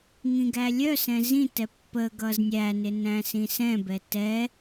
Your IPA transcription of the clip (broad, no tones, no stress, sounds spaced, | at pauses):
ŋ ĩ ɡ æ lʲ œ s ɛ̃ z ĩ t ɛ pː ə ɡ ʌ z nʲ æ n ɪ n æ̃ s ĩ s ɛ̃ b ɛ t ɛ